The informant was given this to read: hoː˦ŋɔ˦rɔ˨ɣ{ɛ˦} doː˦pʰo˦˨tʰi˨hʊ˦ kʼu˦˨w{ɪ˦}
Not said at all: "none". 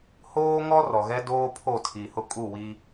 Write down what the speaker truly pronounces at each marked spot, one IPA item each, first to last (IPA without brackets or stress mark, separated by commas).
ɛ˦, i˦